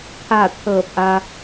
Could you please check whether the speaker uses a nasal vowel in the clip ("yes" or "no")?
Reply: no